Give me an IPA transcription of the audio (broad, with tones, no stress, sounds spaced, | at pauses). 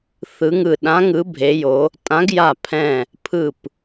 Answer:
θ ɯ˨˦ ŋ ɯ˧˩ ɗ ã˨˦ ŋ ɯ˨˦ bʱ e˨˦ j o˨˦ | tʼ ã˨˦ ɡ j a˧˩ pʰ ɛ̃˧˩ | pʰ ɯ˧˩ p